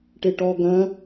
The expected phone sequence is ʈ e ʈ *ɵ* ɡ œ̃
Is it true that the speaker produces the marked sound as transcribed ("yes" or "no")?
no